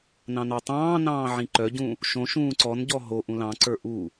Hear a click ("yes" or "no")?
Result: yes